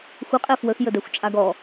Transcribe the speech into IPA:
xʷ ə qʼ ɛ f w ə x j ə d ɛ xʷ t͡ʃʼ a ɡ ɔ

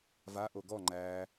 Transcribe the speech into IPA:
v a ʔ o ɡ ɔ ŋ͡ǃ æ

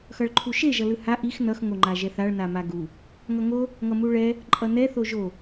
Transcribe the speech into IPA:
x ʌ ɭ ǃʰ u ʃ e ʒ ʌ l ɯ h a ʔ i x n ʌ x ŋ o ŋ͡ǃ a ʒ ɛ θ a ɭ n a m a ɡ u | ŋ ʌ ŋ o | ŋ ʌ m u ɭ ɛ | ǃʼ ʌ n ɛ θ o ʒ o

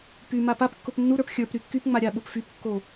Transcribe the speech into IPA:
p y m a p a p kː ʊ p nː u ɾ ə˞ p xʲ ə˞ p ɾ y kː y p ŋ͡m a ɾʲ a ɓ ʊ p f y p kː o

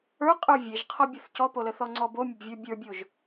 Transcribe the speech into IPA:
ə˞ qʼ ə˞ vʲ e ʒ qʰ ɔ bʲ ə θ c ɔ p o l ə θ ɔ ŋ͡ǀ ɔ b o mʲ ə b vʲ ə˞ bʲ ə˞ bʲ o ʒ

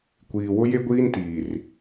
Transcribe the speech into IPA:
kʷ iː˨ w ʊ˦ j e˦ ɡʷ iː˦ n t iː˨ r

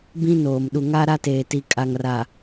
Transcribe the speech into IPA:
b ĩ˦ n oː˨ m ɗ u˨ ŋ a˦ ɾ a˦ t eː˨ t i˨ kʼ a˨ ŋ r a˨

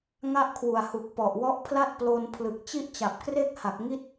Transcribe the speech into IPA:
ŋ a˥˩ ʔ kʰ w u˨˩ a̯ h u˨˩ k̚ p ɔ˨˩ ʔ w ɔ˦˥ ʔ pʰ l a˥˩ t̚ p l o˧ n pʰ l ɯ˨˩ k̚ t͡ɕ i˥˩ ʔ t͡ɕ a˨˩ p̚ k r e˥˩ k̚ h a˨˩ k̚ ŋ i˥˩ t̚

